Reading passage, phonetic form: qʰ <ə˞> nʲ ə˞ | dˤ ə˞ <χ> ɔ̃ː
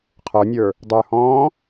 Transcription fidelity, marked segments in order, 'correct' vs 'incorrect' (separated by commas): correct, incorrect